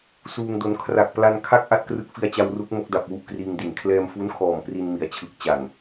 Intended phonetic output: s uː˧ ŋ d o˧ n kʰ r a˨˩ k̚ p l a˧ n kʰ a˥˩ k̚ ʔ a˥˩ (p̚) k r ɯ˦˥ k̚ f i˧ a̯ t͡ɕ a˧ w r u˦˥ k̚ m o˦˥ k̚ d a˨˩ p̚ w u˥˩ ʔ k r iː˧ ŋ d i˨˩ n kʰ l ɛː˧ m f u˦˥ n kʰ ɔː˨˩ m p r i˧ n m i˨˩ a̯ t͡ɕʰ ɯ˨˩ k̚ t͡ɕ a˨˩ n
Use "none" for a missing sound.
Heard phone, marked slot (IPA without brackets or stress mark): t̚